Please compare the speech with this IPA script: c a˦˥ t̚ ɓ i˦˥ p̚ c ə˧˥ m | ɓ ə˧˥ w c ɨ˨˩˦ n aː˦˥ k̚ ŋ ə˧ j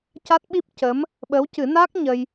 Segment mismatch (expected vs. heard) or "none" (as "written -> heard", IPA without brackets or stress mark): ŋ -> ɲ